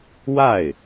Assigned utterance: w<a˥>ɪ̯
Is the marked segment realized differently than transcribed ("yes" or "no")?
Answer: yes